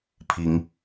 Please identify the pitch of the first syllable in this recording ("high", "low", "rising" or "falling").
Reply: rising